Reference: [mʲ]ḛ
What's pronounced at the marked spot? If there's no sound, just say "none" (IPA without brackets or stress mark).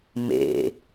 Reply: m